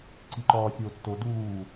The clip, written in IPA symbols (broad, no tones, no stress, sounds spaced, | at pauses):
ǀ i ǃ ɒː sʲ oː t͡s t o d uː